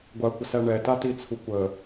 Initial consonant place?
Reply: velar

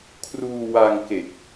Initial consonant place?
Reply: velar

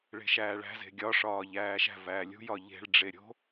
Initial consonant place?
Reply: retroflex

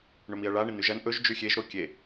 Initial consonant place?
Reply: retroflex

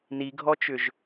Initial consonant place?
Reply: alveolar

